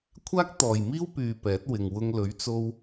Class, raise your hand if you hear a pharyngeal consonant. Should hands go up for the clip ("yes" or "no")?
no